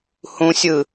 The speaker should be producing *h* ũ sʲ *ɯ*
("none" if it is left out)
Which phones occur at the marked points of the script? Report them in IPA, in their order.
h, ɯ

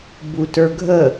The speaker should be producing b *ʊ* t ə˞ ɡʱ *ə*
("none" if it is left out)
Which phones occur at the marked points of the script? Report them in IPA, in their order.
u, ə

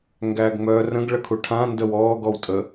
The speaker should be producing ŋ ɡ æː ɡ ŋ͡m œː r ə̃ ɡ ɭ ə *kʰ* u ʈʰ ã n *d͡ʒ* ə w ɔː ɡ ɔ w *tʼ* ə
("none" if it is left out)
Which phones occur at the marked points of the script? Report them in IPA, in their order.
kʰ, d, tʼ

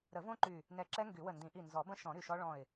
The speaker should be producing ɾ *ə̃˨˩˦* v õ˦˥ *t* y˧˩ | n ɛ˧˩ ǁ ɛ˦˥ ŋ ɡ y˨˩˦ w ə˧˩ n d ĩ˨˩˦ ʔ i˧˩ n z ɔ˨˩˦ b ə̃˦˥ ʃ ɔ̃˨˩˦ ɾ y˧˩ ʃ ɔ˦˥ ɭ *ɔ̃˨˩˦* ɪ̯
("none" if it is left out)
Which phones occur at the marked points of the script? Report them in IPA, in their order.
ə˨˩˦, ǃ, ɔ̃˧˩

